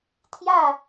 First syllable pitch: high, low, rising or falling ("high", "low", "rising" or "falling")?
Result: falling